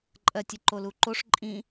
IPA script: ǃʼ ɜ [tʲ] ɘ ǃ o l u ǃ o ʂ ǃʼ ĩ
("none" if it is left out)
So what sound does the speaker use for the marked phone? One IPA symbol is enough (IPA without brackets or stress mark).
tʲ